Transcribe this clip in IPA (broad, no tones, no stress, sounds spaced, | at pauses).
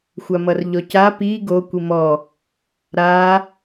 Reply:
xʷ a m ʌ r ʎ ɔ c a p i ɡ o kʷ i m ɔ | ɾ a